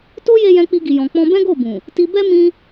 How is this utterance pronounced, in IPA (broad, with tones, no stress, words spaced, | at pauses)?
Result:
to˦je˧ jɛ̃˧k͡pi˧ɡi˨jɔ̃˨ k͡pɔ̃˧bɛ̃˦ɡo˦˨bũ˨ | ti˧bɛ˦ mĩ˧